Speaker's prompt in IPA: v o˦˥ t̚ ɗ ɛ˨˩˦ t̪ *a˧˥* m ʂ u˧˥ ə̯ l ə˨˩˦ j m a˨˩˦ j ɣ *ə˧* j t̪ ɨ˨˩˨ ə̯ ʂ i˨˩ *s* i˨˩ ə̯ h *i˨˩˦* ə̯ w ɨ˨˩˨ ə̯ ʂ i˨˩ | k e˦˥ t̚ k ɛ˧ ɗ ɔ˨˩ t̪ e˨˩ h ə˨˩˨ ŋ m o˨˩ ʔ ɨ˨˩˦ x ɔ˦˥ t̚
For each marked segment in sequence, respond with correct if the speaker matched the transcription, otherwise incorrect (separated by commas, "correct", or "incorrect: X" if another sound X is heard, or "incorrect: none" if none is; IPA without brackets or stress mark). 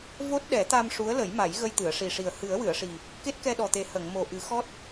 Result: incorrect: a˧, correct, incorrect: ʂ, incorrect: ɨ˨˩˦